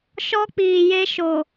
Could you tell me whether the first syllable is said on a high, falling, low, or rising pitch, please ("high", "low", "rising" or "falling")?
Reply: high